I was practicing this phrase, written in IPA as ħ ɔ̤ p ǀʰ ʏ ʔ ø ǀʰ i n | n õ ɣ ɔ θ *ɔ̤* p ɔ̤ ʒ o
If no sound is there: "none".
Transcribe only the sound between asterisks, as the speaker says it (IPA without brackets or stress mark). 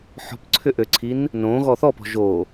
ɔ